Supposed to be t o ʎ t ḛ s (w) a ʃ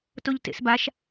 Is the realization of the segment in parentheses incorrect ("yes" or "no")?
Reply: yes